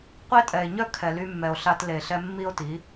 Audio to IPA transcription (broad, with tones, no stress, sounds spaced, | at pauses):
qʷ e˦ tʼ ɛ˨ e̯ ɲ œ˦ kʰ ɛ˨ l y˧ mː ɛ˨ o̯ ɬ a˧ t l e˨ ɬ ɛ˧ mː i˦ o̯ t i˨˦